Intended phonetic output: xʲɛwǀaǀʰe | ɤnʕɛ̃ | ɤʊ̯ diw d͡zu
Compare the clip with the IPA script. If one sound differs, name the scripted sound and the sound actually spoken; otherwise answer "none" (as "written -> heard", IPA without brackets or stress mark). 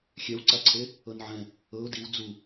none